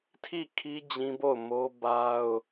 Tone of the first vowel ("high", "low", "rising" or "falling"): falling